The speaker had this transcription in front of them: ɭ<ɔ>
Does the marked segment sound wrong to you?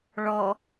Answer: no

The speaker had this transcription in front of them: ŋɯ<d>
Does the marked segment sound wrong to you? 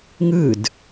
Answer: no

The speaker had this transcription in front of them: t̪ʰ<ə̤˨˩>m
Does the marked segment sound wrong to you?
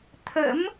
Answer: yes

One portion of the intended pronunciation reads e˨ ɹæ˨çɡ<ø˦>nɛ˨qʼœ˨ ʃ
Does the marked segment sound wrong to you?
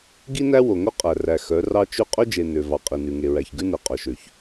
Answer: yes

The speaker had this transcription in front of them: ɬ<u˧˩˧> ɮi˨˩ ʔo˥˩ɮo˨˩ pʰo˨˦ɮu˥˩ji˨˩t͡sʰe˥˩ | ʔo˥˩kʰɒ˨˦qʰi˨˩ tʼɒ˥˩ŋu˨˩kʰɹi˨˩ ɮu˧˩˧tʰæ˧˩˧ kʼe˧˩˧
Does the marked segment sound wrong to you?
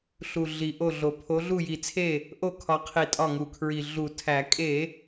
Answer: yes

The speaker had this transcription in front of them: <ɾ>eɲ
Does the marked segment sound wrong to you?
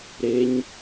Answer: no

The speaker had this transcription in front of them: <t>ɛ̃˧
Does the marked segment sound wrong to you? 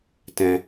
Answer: no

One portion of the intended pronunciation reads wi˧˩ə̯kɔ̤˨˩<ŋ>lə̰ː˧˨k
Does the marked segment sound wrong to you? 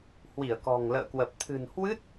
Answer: no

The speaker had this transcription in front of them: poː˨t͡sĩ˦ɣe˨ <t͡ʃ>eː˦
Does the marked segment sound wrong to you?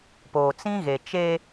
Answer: no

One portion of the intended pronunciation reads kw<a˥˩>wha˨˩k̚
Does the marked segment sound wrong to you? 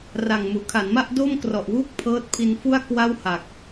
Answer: no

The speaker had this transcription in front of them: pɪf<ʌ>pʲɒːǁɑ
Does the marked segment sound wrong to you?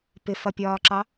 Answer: no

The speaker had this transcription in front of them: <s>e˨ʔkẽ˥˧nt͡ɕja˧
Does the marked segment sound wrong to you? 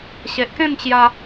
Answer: yes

